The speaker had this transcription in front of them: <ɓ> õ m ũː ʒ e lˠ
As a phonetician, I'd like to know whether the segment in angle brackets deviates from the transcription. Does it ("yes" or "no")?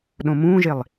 yes